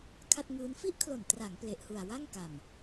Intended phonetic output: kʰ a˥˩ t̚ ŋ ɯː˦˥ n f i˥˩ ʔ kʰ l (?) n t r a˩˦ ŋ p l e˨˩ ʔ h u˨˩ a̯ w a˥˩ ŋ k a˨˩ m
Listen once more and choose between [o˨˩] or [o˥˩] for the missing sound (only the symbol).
o˨˩